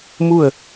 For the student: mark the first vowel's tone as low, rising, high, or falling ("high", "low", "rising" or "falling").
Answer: falling